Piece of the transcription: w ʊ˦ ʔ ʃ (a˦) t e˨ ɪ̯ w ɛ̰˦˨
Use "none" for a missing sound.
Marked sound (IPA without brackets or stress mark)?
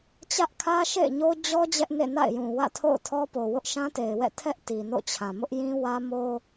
ã˦